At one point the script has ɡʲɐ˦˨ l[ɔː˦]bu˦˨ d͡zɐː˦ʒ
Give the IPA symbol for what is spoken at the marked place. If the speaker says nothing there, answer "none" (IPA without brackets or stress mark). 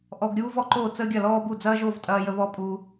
ɔː˦